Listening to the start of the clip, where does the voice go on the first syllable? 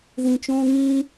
low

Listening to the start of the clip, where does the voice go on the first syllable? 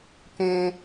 high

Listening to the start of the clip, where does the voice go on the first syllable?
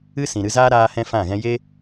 high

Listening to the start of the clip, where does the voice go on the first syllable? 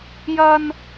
high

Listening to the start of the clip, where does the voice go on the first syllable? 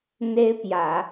high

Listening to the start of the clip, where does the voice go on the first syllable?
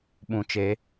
low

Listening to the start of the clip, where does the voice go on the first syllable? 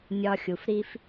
low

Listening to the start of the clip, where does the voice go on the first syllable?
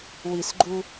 low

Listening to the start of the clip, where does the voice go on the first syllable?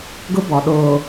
high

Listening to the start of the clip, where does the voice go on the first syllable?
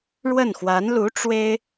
falling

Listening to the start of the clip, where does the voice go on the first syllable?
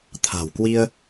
low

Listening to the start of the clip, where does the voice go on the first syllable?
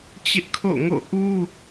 high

